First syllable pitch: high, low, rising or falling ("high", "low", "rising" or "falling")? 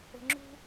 low